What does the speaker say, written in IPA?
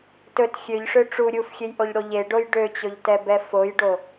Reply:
t ɵ t xʲ ø ʎ ʂ ø ʈ͡ʂ u ɾʲ u f xʲ e j ʔ o ʎ ɽ o ʎ e ɖ o j ɖ ø t͡ɕ ɵ ʎ t ɛ b ɛ f o j ɖ o

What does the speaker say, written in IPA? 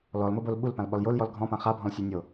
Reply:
l ɔ l m o b o l ɓ u l p ã l ɓ ɔ l j o l j ɔ l ɡʱ ɔ̃ p ã χ a bʱ ɔ̃ l sʲ ɔ nʲ o

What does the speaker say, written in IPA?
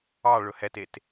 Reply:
ɑ ɭ ɵ h ɛ t e t

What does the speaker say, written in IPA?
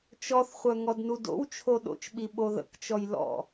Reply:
t͡ʃ ɔ θ χʷ œ ŋ ɔ d n u d o̰ w t͡ʃʰ o ɗ o̰ t͡ʃ ɓ i ɓ o ð ə̰ k t͡ʃ ɔ j l ɔ̰

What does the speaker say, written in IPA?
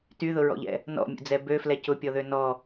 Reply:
t y ð ʊ ɹ ɔ̰ ʎ ɛ̰ | n ɔ̰ mʲ ṵ d͡z ɛ b ø f l ɛ c ʊ pʲ ɔ ð ø n ɔ

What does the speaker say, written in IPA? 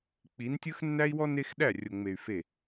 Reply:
k͡p i˨˦ n tʲ ɯ˦ x nː æ˦ i̯ w ɔ˦ n e˦ x ɗ æ˦˨ rʲ o˨ ŋ͡m e˨ y̯ f e˦˨

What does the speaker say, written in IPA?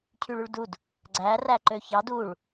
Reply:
cʰ y ɭ y ɭ d u d | ɡ͡ǀ æ r æ ǃ ø ç ɑ d u ɭ

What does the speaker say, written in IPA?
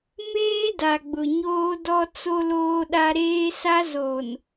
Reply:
m eː˦ d a˨ ɡ͡b ʊ˨ ɲ oː˦ d ɔ˦ t͡s o˦ l oː˦ ɗ a˦ ɾ eː˦ s a˦ z o˨ n

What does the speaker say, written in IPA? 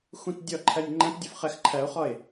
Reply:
x ũ t dʲ ɒ ǃʰ æ nʲ ŋ͡ǃ æ̃ t dʲ o f χ æ x ǃʰ æ o̯ χ ɒ e̯

